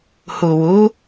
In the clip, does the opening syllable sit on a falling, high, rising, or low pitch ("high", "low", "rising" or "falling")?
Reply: low